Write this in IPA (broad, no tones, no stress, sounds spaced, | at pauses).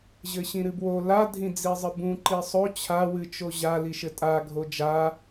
ʑ ɘ ɕ ĩ ɾ ɨ b w o l a dʱ ĩ d͡z i zˤ ɨ b ũ ǃ i sˤ o t͡ɕʰ a w ɨ t͡ʃ o ʑ a l i ʃ ɘ tʼ a ɡʱ o d͡ʒ a